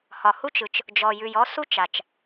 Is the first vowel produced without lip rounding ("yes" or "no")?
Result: no